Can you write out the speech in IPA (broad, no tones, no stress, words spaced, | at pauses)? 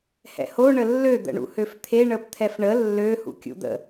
hɛ̰ho ɳəlːø d̪ə̰ɳṵhøft̪ʰe ɳəpt̪ʰɛfɳə lːø hṵkʲṵd̪ə̰